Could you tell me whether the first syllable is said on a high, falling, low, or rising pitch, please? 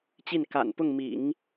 falling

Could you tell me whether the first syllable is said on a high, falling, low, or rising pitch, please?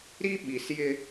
high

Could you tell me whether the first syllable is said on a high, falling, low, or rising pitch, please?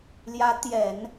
rising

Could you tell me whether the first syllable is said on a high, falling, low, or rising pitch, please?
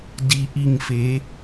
low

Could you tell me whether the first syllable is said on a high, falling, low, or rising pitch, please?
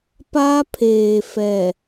high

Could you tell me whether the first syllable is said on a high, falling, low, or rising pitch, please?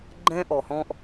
high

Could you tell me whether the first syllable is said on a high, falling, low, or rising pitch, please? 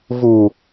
low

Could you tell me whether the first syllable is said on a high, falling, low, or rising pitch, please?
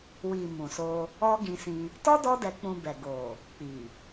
low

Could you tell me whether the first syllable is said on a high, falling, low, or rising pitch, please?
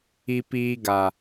low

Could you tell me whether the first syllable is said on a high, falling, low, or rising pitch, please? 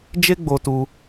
high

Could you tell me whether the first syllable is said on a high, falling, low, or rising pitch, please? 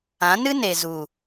rising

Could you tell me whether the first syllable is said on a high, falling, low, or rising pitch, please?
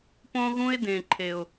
high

